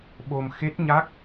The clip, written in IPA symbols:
ɓ o˧ m x e˦˥ t̚ ɲ a˦˥ k̚

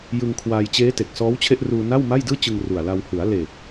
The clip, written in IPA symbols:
j ɯ˧ ŋ kʰ w aː˧ j t͡ɕ eː˦˥ t e˨˩ k̚ s ɔː˦˥ w t͡ɕʰ e˥˩ ʔ r uː˧ n a˥˩ w m a˥˩ j d ɯː˥˩ t͡ɕ ɯ˧ ŋ r u˨˩ a̯ l a˧ w h ɯ˩˦ a̯ l e˨˩ k̚

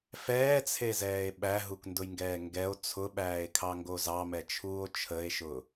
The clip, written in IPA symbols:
f ɛː t͡sʰ e z ɛː e̯ ɓ æ ɦ u k n d ʊ j ŋ ɡ ɛː ŋ ɡ ɛ o̯ t͡sʰ ʊ ɓ æː e̯ kʰ ɑ ŋ ɡ o z ɑ m ɛ t͡ʃʰ uː o̯ t͡ʃʰ ə e̯ ʃ ʊ

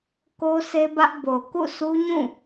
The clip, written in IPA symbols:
k o˦ sʰ e˦ b ä˦ ʔ b o˨ k ṵ˦˨ sʰ u˦ ɲ ũ˦˨

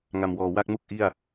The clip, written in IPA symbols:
ŋ a˨˩ m w ɔː˨˩ w a˥˩ k̚ m u˥˩ k̚ ʔ i˥˩ a̯

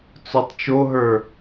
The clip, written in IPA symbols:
t͡s o tˤ t͡ʃ o ɦ ə˞

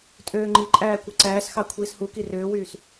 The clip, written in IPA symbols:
tʼ øː ŋ͡ǃ i ǃʼ æː kʷ ɯ ǀ æː s x ɑ kʷʰ iː s h u k i r øː w yː s

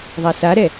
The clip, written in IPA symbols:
ðˤ a s a ɾ ɛ

